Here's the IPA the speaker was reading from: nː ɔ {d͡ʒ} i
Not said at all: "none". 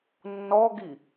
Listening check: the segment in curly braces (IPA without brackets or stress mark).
ɡ